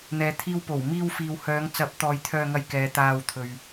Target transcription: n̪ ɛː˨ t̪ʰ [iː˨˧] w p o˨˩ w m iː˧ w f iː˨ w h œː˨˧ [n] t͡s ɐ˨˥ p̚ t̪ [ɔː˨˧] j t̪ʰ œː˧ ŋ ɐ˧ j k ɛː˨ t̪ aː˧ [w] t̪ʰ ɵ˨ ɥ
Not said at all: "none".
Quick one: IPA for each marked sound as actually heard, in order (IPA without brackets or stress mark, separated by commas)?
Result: iː˧, ŋ, ɔː˨, w